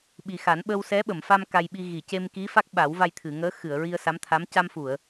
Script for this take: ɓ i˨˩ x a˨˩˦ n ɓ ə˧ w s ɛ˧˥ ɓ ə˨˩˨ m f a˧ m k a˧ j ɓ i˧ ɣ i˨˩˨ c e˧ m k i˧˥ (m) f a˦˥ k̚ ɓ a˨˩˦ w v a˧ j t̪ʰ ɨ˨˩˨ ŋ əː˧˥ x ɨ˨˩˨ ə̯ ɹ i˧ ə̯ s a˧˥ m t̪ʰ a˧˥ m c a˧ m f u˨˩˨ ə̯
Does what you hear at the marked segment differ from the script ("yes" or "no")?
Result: yes